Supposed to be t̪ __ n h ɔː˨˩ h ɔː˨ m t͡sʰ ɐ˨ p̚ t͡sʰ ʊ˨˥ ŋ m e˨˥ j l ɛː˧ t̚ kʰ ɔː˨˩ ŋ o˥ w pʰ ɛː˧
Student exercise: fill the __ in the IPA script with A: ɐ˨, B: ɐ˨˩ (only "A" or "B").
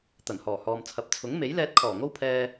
B